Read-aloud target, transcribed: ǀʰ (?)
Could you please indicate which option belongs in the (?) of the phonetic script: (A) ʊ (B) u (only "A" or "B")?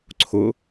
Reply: A